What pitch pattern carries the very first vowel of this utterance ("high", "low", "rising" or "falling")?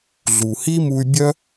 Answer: low